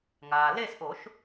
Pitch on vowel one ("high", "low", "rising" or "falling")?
low